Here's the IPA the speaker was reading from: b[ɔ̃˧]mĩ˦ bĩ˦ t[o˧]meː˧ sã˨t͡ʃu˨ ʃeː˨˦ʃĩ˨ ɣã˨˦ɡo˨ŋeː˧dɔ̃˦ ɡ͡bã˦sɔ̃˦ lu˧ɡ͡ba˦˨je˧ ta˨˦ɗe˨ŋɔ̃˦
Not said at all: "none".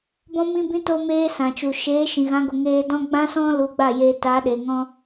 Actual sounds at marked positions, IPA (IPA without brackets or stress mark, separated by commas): ɔ̃˦, o˧